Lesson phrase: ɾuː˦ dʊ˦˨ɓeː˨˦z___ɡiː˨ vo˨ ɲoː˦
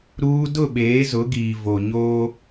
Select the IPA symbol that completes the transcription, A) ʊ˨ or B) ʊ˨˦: B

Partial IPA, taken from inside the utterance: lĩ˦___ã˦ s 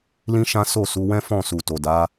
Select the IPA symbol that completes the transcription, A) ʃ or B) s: A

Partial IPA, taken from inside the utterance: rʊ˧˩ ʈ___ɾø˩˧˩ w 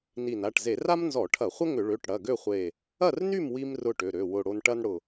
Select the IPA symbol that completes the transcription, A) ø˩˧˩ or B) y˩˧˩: A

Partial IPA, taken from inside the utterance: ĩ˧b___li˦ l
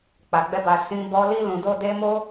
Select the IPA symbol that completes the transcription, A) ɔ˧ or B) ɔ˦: A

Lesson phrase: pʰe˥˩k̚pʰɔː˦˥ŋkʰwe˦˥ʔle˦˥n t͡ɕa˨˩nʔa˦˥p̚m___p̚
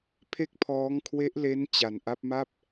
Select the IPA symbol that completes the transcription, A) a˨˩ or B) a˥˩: B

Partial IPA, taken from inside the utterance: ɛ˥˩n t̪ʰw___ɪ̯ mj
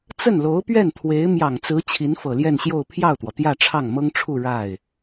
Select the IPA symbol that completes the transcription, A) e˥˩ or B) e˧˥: B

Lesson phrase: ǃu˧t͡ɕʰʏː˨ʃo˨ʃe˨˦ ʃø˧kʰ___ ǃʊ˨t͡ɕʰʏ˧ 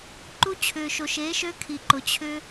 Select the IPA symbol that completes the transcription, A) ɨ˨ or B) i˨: B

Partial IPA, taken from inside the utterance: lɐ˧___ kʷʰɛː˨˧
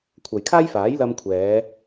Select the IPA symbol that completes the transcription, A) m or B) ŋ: A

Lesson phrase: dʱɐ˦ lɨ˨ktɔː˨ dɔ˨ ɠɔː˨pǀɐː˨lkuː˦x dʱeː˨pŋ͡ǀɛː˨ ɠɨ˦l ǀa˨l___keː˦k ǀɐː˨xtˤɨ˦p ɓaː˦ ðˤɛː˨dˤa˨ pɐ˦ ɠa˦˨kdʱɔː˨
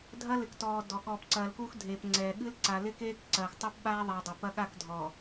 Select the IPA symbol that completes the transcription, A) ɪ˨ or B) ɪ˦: B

